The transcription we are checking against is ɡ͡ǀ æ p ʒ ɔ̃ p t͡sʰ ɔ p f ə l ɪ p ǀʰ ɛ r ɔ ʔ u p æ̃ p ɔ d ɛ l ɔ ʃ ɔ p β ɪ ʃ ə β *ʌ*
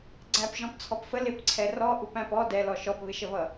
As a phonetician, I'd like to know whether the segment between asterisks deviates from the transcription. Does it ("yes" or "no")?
no